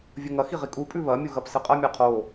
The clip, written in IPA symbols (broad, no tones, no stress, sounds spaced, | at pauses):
vʲ ɵ ŋ ɐ x i ʁ i kʼ u pʼ ʉ β ɐ mʲ u ɣ ɐ p s ɨ qʼ ɐ mʲ a qʰ o